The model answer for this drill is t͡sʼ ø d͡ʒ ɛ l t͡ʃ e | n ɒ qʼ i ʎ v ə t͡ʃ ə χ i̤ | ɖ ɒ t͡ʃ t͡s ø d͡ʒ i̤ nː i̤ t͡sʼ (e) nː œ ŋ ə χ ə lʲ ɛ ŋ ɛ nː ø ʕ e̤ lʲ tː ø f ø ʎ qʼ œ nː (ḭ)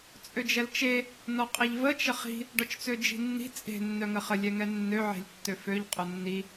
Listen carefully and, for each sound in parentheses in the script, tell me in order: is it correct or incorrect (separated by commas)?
incorrect, incorrect